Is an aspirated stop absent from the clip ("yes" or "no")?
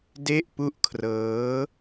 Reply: no